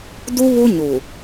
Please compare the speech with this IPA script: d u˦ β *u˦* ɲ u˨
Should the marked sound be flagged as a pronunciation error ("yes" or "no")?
no